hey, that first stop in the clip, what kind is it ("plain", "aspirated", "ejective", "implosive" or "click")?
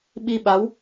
implosive